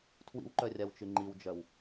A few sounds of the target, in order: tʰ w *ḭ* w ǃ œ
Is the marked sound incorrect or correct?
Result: correct